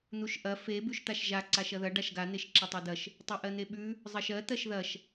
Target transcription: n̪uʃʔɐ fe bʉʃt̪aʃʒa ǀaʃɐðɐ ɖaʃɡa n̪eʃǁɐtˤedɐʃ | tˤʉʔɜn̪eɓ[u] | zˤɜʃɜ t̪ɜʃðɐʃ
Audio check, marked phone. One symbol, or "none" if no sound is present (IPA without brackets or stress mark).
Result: ʉ